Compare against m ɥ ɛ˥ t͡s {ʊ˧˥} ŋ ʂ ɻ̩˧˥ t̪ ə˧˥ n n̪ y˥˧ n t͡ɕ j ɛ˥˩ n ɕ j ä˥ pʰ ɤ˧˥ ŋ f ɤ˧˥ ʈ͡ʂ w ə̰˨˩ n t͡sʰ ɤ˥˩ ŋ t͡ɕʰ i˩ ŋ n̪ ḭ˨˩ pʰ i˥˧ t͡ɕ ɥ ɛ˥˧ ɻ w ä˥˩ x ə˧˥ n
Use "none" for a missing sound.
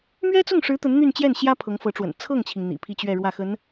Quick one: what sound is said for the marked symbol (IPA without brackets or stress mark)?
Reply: ʊ˥˩